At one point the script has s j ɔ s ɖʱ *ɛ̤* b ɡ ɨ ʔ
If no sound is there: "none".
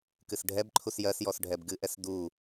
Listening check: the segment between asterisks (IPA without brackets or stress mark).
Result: ɛ